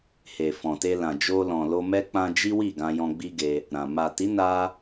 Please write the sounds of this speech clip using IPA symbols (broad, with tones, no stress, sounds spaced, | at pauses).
h e˨ f ɔ̃˨ t e˧ l ã˨ d͡ʒ o˧ l ɔ̃˨ l o˧ m ɛ˦ k͡p ã˧ d͡ʒ i˦ w i˦˨ ɡ ã˧ j ɔ̃˧ ɡ͡b i˦ ɡ e˧ | ɾ ã˨ m a˨ t i˨˦ n a˦